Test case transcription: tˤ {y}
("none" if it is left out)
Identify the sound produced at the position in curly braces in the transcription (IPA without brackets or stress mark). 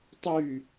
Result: y